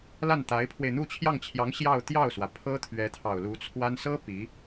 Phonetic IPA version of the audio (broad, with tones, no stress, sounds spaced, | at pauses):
l a˥˩ n t̪ a˧˥ ɪ̯ pʰ w e˧ ɪ̯ n̪ u˥˧ t͡ɕʰ j ɑ˥˩ ŋ t͡ɕʰ j ɑ˧˥ ŋ ɕ j ɑ˥˧ ʊ̯ t̪ j ɑ˥˩ ʊ̯ s w ä˩ pʰ ɤ˥ t̪ʰ ɥ ɛ˧˥ t̪ʰ ɑ˨˩ ʊ̯ l u˧˥ t͡sʰ w a˥ n s ɤ˥ p i˧˥